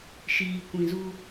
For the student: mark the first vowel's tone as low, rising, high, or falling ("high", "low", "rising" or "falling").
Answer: low